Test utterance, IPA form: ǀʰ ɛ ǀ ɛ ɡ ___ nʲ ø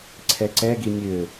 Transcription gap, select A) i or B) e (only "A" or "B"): A